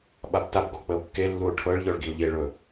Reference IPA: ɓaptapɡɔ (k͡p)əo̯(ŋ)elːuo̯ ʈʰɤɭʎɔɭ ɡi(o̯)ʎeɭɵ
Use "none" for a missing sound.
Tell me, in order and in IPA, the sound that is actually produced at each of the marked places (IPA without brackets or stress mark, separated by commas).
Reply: k͡p, kː, o̯